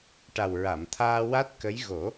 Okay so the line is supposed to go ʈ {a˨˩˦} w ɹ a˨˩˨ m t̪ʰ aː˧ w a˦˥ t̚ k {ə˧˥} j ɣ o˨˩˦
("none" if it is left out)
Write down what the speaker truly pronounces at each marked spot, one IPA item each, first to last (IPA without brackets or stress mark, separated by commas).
a˨˩, ə˧˥